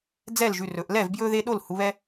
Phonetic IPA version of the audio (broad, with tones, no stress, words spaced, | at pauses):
d͡zɛ˥˩lʒʉ˩˧˩rɵ˩˧ʔ lɛ˥˩vbjɵ˦ðe˦ɗo˥˩l hu˩˧βɛ˦